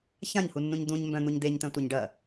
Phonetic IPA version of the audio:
ç ã ɲ h u nː ũ ɲ d̪ ũ ɲ m b œ̃ n̪ u ɲ d̪ e ɲ t̪ œ̃ tʷ e ɲ ɖ ɐ

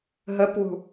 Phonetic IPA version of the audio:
ɦ ə p w ṳ

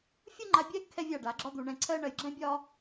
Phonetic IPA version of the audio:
fʲ u˦ ŋ͡ǃ a˧ bʲ ɛ˦ ɡ kʰ ɛ˦ vʲ a˦˨ ɖ a˨˦ ɡ͡ǁ ɒ˦ d̪ u˧ ɳ ɛ̃˧ ǀʰ ɜ˦ ɳ ɜ˦ j ɡ͡ǁ ɛ̃˦ bʲ ɒ˦

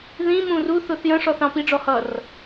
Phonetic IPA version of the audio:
ð ĩ m ũ r u θ ʊ θ j ə̃ ʂ ɔ θ ɑ̃ p i ɖ͡ʐ ɔ h ʌ r

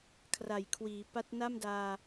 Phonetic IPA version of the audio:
kʰ r a˨˩ j kʰ w iː˩˦ p a˦˥ t̚ n a˥˩ m d aː˧

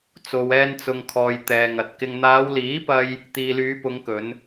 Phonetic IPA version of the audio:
t͡s o˨ w ɛː˧ n t͡s ʊ˨ ŋ kʰ ɔː˨ j t̪ ɛː˨ ŋ ɐ˨ t̚ k ɪ˧ ŋ n̪ aː˨˧ w l iː˨˥ p ɐ˧ j | t̪ iː˨ l yː˨˧ p ʊ˨˧ ŋ k ɵ˨˧ n

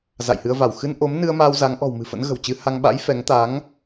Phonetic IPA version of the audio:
z a̰˧˨ j h ɨ˧ ə̯ v a˧˩ w x ɨ˧ n ʔ o˨˦ m n ɨ˧ ə̯ m aː˧ w z a˨˦ ŋ ʔ ɔ̤˨˩ w m ɨ̤˨˩ f ə̰˧˥ n ɣ ə̤˨˩ w t͡ɕ ɨ˨˦ h a˧ ŋ ɓ a̰˧˥ j f ɛ˨˦ ŋ t̪ a˨˦ ŋ

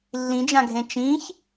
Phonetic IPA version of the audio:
lː ĩ d͡ʒ ã ɡʱ ẽ t͡ʃ ĩ ç

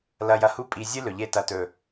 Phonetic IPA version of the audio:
l ɐ˧ j ɐ˧ h u˦ pʼ i˨ zʲ ɨ˦ l ɵ˨ ʎ e˧ t ɐ˨ t ɵ˨

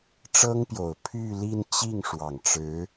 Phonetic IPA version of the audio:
ʈ͡ʂ ɤ˥ ŋ p j o˨˩ ʊ̯ pʰ y˥˧ l i˥˧ n t͡ɕ i˥˩ ŋ ʂ w ɑ˨˩ ŋ ʈ͡ʂ ɻ̩˧˥

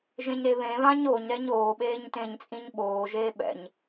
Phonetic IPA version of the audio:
ʒ ẽ ɲ ɾ e β ẽ β ã ɲ o ɲ ɾ ɛ ɲ oː ɓ eː ɲ t ẽː ɲ t͡sʼ ĩ ɲ ɓ oː ʒ eː ɓ ɛ̰ ɲ

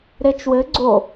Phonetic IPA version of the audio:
ɾ e t͡ʃ w ɘ ɡ͡ǀ o

